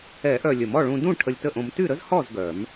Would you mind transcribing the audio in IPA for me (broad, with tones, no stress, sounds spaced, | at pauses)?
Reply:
ɛ˨˩˦ ʔ œ˨˩ lʲ ə˨˩˦ m ɔ˥˨ ɭ ũ˧ d ũ˥˨ ʈʰ ə˧ lʲ t ə˥˨ ʔ õ˧ m t y˥˨ ɾ ə˥ z h ɔ˥˨ z ɡ œ˨˩˦ m